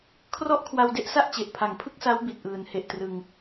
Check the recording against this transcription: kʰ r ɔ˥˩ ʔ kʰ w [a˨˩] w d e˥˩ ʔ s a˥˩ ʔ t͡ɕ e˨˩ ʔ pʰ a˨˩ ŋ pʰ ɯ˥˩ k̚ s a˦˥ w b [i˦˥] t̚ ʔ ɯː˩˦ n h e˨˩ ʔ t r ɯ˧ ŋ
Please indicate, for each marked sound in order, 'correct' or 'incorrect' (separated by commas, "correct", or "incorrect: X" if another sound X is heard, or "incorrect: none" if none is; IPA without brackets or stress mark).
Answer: incorrect: a˧, incorrect: i˨˩